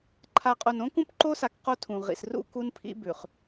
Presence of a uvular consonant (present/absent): present